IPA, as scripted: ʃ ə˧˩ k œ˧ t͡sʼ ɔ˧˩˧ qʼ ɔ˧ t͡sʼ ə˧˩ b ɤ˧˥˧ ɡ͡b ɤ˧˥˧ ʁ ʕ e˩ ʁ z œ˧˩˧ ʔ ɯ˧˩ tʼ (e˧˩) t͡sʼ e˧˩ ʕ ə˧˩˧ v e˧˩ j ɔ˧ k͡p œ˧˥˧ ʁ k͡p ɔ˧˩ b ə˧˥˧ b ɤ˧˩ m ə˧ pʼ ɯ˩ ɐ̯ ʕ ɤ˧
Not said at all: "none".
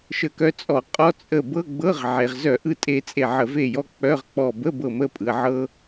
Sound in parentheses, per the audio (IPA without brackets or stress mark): e˧